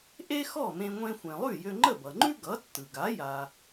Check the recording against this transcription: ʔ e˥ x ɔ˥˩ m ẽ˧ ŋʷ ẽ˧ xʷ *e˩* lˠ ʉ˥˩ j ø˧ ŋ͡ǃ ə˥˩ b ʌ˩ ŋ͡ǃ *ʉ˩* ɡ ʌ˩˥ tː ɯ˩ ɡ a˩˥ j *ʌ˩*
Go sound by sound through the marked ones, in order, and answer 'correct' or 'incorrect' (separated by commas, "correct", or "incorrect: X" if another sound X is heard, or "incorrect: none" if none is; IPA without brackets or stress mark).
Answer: incorrect: ẽ˩, incorrect: ʉ˥, incorrect: a˩